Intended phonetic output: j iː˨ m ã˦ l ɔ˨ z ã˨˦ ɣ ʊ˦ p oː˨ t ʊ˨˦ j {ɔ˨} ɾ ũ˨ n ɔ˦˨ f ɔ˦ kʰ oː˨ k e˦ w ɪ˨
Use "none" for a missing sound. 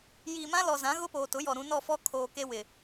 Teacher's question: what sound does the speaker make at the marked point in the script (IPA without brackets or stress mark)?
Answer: ɔ˨